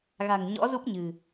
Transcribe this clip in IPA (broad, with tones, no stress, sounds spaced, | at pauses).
ɣ a̤˨˩ ŋ ɲ ɔ̰˧˥ z u˦˥ p̚ ɲ ɨ̤˨˩